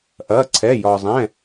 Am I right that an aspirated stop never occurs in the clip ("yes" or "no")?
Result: no